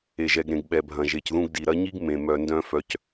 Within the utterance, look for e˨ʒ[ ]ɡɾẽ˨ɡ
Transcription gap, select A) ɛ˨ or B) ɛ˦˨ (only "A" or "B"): A